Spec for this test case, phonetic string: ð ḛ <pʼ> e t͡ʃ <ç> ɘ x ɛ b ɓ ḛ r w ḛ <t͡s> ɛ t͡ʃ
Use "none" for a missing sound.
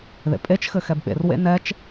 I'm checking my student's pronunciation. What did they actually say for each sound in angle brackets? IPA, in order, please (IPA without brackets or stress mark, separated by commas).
pʼ, x, n